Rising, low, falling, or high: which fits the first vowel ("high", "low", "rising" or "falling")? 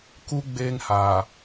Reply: high